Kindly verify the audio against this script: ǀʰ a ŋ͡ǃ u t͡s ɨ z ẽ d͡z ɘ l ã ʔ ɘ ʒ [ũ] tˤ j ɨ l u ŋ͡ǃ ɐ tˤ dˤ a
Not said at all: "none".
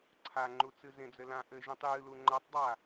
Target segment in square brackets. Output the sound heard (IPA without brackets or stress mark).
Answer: ũ